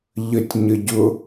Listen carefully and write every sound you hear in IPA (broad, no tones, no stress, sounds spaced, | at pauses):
ʎ ə tʲ ɲ ə ɟ ʊ